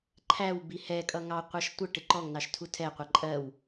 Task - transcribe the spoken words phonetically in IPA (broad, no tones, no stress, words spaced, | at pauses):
ǃʰæw bihɛkʼʌ ŋɑqʷɑʃ tʷʌʈɪ ǃɔŋnɑʃ tʰutʰɛqʷʌ ǃʼɜw